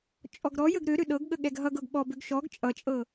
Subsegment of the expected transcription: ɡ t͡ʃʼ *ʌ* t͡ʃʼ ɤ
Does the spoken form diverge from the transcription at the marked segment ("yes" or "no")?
no